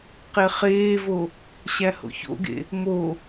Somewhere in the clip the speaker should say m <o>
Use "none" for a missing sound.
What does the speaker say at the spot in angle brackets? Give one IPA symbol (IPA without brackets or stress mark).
o